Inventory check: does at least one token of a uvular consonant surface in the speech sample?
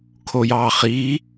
yes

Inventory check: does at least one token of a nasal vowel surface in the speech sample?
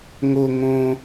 yes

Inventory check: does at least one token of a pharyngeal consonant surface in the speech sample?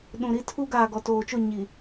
no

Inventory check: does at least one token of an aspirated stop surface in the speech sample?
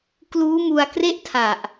yes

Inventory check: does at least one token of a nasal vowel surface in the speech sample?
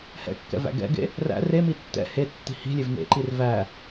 no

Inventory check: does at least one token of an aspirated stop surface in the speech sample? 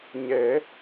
no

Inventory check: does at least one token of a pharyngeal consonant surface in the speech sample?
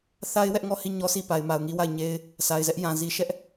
no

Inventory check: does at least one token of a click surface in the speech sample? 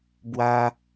no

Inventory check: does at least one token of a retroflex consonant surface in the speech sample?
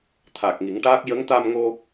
yes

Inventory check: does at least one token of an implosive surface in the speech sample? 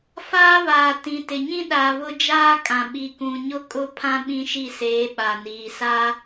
yes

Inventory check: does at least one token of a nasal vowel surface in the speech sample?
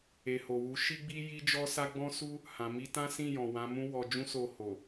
yes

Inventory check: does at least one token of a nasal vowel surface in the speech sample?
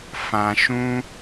yes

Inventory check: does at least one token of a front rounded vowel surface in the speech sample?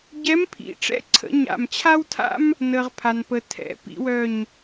yes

